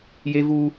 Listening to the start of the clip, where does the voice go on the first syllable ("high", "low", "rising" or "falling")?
high